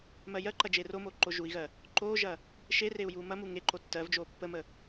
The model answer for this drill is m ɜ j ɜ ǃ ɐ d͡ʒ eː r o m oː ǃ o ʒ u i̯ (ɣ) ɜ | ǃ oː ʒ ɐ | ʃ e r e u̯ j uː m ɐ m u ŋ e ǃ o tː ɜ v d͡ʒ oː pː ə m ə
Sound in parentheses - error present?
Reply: no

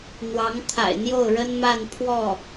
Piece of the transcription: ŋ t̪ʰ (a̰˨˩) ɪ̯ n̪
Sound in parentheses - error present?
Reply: no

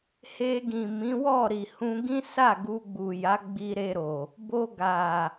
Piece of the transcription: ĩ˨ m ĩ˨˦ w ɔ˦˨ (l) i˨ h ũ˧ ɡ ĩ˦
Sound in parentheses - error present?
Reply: yes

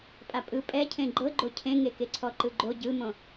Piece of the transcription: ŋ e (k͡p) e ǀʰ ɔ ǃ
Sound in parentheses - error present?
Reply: yes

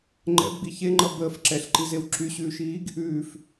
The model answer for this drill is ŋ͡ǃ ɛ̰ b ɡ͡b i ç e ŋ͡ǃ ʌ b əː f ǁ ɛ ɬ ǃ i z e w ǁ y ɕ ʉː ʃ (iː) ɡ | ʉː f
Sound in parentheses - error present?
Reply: no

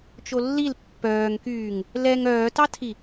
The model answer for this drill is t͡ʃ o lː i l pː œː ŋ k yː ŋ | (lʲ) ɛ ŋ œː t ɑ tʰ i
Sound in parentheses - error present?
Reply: yes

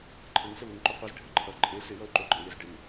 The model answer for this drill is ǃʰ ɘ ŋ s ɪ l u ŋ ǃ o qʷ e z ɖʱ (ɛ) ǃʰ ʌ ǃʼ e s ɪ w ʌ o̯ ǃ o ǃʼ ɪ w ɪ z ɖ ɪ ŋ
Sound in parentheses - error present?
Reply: yes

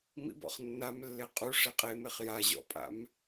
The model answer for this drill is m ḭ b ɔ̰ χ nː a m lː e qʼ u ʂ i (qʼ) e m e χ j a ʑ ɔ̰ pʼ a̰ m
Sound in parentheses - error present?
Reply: no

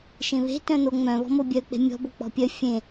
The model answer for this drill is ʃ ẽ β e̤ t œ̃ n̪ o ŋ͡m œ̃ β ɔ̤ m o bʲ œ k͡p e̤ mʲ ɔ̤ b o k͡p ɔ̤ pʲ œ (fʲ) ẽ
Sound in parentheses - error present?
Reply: no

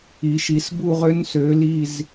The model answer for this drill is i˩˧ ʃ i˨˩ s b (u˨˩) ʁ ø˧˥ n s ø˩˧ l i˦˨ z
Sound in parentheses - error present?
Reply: yes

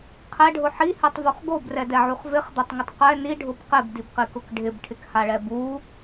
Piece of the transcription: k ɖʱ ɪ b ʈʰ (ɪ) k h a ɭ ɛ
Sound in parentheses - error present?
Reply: no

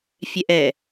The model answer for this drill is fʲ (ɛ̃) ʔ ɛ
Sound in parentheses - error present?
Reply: yes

